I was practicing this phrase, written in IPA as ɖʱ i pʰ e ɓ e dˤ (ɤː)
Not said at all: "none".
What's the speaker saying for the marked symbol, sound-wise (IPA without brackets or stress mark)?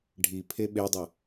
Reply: ɤ